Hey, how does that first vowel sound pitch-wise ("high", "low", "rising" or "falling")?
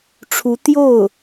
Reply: rising